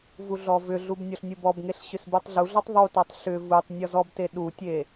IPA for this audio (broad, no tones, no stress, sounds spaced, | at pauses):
v u ɮ ɔ v ʏ ɮ u b nʲ ɔ ɬ nʲ u b ɔ b ŋ e ɬ ɕ ʏ s b u tˤ ɮ u ɮ ɔ tˤ ðˤ u t ɔ tˤ ɬ ʏ v u tˤ nʲ ɔ z ɔ b t e ɗ u tʲ e